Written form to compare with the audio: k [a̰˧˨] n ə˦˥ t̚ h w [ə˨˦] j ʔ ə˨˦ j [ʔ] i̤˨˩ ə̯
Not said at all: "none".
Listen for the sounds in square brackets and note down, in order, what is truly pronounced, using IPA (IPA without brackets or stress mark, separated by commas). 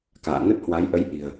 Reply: a̰ː˧˨, a˨˦, ʔ